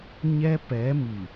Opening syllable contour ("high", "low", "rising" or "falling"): high